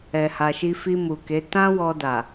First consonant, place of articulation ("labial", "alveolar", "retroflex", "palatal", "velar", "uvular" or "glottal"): glottal